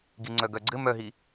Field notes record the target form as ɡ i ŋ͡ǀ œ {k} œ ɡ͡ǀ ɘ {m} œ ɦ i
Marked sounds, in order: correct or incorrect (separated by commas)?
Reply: incorrect, correct